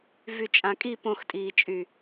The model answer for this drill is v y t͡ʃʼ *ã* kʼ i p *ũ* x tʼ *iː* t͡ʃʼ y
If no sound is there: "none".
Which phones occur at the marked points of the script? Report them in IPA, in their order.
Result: ã, õ, iː

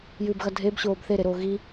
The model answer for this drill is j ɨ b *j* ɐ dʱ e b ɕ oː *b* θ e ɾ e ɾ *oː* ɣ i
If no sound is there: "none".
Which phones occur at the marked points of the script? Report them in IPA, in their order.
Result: ɣ, b, oː

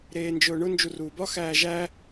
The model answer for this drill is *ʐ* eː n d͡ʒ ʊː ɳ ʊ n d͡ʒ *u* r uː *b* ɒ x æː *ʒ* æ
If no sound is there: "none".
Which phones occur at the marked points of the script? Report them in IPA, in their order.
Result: ɾ, u, b, ʒ

